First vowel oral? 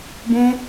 no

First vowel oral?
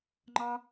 yes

